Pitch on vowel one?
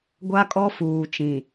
high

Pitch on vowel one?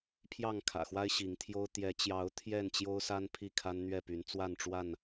falling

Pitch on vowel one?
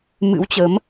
rising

